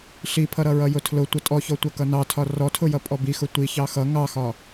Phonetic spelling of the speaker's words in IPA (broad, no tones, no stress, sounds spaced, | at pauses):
ɬ i pʰ ʌ ɾ ʌ ɹ ʌ j ʊ tʰ l ʊ tʷ ʌ tʼ ɔ ç ɔ tʷ ʌ k ʌ n ɑ tʰ ɒ r ɔ tʰ ʊ j ʌ pʼ ɔ b i x ʊ tʷ i ç ɑ x ʌ ŋ ɑ x ɒ